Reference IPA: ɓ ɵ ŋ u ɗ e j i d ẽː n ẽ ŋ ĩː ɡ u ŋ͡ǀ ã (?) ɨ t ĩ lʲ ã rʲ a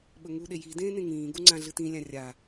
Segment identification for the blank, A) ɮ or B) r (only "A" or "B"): A